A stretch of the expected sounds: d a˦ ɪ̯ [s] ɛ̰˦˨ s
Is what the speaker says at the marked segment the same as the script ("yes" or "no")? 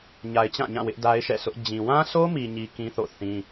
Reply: no